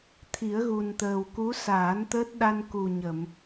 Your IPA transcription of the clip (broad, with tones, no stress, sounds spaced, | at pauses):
t̪ʰ i˨˩˦ ə̯ ɣ u˨˩ n t̪ əː˨˩ w k u˧˥ s aː˨˩˦ n t̪ əː˦˥ t̚ ɗ a˧ n k u˨˩ ɲ ə˨˩˨ m